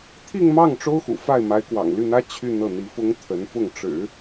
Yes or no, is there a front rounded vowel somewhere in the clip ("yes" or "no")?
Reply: yes